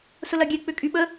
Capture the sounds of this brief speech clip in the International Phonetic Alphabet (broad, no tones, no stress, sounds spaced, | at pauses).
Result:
s ʊ l ɐ ɡʲ ɛ k͡p ʏ kʼ y ɓ ə